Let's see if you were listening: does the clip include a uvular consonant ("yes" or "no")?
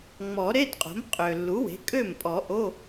yes